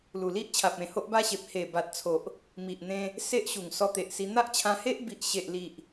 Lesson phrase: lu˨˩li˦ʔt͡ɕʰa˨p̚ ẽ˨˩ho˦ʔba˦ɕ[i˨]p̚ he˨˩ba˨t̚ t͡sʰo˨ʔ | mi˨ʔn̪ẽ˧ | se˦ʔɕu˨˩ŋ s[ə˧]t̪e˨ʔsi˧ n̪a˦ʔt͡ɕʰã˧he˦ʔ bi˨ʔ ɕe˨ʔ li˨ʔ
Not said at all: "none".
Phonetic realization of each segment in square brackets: e˨, ɔ˧

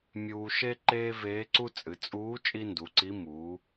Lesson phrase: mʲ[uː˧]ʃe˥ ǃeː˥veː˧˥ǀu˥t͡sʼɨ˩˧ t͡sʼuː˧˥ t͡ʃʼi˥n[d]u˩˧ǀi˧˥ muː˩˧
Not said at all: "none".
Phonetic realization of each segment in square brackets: uː˧, d

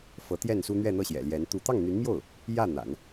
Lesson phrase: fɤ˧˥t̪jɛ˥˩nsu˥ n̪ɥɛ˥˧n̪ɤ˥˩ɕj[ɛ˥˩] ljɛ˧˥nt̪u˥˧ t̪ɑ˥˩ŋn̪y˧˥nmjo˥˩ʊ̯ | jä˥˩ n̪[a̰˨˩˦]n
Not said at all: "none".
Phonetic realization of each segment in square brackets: ɛ̰˨˩, a̰˨˩˦

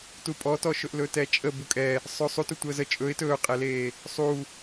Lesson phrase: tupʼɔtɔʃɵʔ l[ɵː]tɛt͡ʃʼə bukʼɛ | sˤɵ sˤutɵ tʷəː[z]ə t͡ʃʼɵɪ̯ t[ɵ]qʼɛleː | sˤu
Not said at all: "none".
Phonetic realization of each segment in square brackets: ɵ, z, ɵː

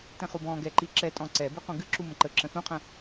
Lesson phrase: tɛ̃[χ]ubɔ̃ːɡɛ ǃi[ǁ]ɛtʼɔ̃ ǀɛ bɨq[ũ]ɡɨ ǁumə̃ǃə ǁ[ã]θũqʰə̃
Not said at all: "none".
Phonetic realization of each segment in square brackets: χ, ǁ, ũ, ə̃

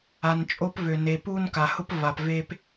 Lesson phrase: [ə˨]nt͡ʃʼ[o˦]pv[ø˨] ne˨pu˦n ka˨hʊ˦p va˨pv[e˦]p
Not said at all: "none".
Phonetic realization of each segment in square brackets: a˨, o˦, ø˨, e˦

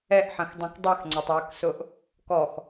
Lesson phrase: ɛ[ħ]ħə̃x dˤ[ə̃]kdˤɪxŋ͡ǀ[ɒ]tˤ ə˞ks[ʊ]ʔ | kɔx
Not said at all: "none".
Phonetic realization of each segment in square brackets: ʔ, ɛ̃, ɑ, ʊ

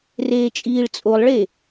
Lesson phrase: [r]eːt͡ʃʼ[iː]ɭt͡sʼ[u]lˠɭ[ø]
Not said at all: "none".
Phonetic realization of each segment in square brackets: r, iː, o, e

